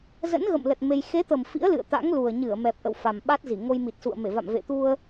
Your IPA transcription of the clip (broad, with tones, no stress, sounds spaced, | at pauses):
z ə̰˧˥ n ɣ ə̰˧˨ m l ə˨˩ t̚ m e˧ j x e˨˦ t̪ ə˨˩ m f ḭ˧˥ ə̯ l ɨ̰˧˨ ə̯ t̪ a̰˧˥ ŋ l u˨˩ ə̯ ɲ ɨ˧˩ ə̯ m ɛ˨˩ p̚ ʔ ə̰˧˨ w f a˨˩ m ɓ a˦˥ t̚ z i˧˩ ŋ o˧ j m i˨˩ t̚ s ṵ˧˨ ə̯ m e˧˩ v a̰˧˨ m v ḛ˧˨ t̪ u˧ ə̯